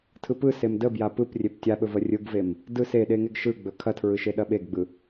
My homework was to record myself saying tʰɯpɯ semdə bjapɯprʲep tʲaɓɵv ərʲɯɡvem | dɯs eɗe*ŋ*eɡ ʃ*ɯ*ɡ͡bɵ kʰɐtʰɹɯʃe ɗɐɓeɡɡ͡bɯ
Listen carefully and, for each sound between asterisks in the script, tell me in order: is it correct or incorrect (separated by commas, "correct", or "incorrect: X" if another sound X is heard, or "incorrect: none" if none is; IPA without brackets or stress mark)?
correct, correct